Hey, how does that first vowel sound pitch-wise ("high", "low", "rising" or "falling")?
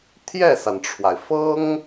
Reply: falling